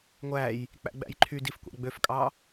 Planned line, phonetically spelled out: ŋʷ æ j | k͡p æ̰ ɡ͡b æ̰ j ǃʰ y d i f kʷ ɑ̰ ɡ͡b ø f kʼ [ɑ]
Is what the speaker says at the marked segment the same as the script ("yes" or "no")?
yes